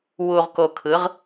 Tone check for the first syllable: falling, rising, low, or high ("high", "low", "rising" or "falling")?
low